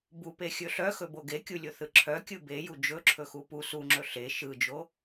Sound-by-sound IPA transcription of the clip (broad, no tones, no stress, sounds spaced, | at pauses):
b u p e xʲ ɵ ɬ œ x ɵ b o ɡ e kʲ u lʲ o θ ɯ ǁʰ œ kʲ ɯ b e j u d͡ʒ ɵ ǁʰ ɵ x u p u s u ŋ͡ǁ ɵ ɬ e ʃ ɯ d͡ʒ o